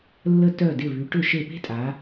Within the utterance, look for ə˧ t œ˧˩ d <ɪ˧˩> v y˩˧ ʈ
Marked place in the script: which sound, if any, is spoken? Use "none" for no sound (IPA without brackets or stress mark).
ɪ˧˩